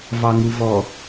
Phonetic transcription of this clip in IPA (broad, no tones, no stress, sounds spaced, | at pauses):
v ɑ ŋ u v ɔ